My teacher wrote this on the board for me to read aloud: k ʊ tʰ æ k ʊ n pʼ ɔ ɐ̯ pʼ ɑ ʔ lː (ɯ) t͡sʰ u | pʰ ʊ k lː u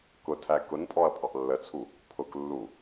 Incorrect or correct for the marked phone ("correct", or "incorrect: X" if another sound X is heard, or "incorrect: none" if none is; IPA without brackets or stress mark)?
incorrect: ə